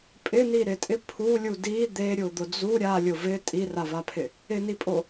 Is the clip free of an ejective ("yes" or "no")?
no